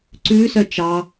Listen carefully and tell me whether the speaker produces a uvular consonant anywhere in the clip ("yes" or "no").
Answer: no